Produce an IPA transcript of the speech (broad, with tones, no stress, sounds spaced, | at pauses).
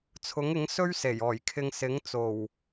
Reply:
t͡sʰ ʊ˨˥ ŋ ɪ˨˥ ŋ s ɵ˥ ɥ s e˨˩ j ɔː˨˩ j kʰ ɪ˧ ŋ s ɪ˨˥ ŋ t͡s o˨˩ w